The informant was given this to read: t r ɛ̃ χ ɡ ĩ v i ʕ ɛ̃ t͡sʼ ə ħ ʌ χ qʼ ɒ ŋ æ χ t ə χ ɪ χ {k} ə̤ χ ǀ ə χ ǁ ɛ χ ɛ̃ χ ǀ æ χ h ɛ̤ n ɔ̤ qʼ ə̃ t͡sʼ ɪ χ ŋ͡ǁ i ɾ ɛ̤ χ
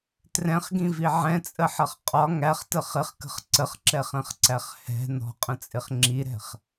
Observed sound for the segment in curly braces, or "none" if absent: k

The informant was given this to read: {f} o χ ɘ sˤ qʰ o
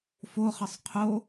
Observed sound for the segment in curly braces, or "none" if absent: f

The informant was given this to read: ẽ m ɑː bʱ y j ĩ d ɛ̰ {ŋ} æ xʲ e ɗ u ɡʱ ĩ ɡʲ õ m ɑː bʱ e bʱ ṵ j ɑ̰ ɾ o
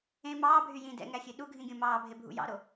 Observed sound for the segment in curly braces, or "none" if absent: ŋ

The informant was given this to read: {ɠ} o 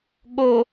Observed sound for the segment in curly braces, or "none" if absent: ɠ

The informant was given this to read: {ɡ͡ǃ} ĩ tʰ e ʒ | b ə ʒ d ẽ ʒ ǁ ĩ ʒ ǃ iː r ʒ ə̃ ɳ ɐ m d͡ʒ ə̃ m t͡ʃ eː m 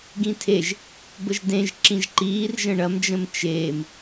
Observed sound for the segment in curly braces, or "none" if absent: ɡ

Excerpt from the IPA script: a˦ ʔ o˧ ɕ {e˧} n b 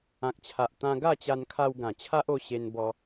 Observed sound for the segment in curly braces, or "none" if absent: e˧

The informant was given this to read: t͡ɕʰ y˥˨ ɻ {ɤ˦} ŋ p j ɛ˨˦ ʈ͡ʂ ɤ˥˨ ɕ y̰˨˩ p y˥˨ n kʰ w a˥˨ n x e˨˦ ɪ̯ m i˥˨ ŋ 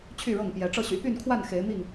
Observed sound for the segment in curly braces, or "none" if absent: ɤ˥˨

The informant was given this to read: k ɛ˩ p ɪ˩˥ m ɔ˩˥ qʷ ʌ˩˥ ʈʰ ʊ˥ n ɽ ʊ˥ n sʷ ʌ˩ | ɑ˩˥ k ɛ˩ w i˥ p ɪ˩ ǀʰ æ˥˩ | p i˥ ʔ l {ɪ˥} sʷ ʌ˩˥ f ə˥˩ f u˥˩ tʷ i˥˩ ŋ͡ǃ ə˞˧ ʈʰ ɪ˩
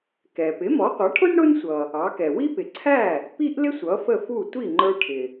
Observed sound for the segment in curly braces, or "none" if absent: ɪ˥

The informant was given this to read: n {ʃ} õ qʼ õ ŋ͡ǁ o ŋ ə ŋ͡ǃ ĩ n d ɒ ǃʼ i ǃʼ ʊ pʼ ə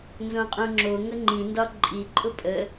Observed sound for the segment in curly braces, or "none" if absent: z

